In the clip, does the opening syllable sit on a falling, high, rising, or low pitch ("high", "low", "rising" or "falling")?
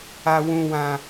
high